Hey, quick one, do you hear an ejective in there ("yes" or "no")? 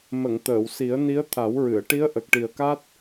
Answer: no